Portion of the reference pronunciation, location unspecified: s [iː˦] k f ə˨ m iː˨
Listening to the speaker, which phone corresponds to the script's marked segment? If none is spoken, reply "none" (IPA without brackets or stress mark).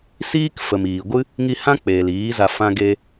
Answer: iː˦